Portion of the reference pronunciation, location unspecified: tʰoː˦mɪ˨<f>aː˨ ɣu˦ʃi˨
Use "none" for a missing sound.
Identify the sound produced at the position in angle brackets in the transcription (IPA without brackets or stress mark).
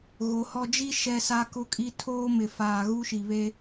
f